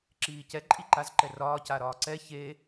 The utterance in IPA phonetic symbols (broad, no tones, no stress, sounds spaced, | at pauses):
ǁ iː c ɛ ǃʼ i ǃ a z ǃ ɛ r ɒː c a ɾ ɒː ǀ ɛ ç e